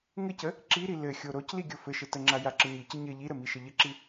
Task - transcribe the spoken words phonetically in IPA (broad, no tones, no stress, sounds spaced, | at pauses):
ŋ ɘ c ə | ǁ i ɾ i l ɘ xʲ o ɾ o c l i ɡʲ o f ɘ ʃ ɘ t ə ŋ͡ǁ a j a ǁ ə ɲ i c ə ɲ ɘ ʎ i ɾ ə m i ʃ ə ʎ ə ǁ i